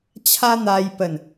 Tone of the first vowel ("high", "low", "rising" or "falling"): high